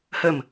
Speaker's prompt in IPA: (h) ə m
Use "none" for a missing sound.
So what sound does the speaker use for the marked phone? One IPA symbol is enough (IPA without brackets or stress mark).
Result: h